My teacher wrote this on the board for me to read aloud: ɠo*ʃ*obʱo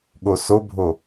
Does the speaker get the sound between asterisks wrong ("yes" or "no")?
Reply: yes